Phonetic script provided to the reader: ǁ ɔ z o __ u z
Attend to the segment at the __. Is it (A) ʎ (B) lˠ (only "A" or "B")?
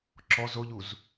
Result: A